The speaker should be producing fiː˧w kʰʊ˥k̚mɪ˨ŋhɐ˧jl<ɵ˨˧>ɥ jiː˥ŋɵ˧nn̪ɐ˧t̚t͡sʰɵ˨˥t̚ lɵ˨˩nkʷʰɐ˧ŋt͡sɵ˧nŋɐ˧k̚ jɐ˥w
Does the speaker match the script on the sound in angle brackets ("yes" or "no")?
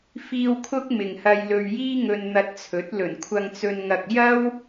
no